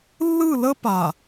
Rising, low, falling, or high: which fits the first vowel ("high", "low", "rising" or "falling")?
falling